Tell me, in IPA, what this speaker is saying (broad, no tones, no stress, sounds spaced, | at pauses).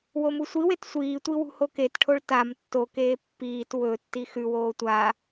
w o m u sʷ i w e t sʷ iː tʷ i w ṳ h o k e t ʈʰ o ɭ t a m tː o k eː pː iː t w ɵ tː i x ʉ w oː tʷ a